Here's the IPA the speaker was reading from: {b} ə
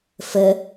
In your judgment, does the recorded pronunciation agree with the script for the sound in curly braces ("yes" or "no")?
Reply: no